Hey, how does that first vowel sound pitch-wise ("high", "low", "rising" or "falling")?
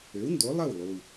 rising